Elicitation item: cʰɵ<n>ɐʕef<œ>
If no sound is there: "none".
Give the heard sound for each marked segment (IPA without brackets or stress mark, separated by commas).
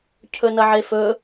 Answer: n, ɵ